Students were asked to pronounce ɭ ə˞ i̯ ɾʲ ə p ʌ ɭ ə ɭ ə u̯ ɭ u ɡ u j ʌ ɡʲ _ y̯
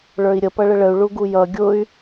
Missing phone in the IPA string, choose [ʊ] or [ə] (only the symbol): ʊ